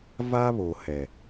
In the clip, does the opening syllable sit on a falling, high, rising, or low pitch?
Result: high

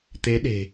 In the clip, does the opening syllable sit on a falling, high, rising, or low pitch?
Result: rising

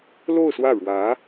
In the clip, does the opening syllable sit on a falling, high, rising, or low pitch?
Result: falling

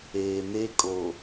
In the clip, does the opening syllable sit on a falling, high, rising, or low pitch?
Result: low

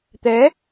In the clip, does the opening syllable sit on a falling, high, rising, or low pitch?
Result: rising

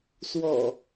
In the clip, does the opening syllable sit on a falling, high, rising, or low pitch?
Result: low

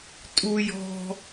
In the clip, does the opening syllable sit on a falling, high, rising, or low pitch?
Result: high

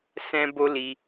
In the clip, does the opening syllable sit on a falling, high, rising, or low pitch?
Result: high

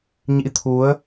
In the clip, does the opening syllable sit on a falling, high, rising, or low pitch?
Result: rising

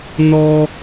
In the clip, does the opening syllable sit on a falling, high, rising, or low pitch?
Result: high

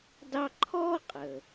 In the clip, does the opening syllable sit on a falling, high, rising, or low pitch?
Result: high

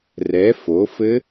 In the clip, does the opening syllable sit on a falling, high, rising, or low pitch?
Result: rising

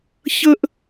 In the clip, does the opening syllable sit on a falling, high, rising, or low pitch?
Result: high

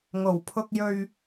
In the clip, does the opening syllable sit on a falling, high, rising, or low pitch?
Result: low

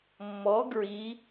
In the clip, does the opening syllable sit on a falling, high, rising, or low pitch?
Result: rising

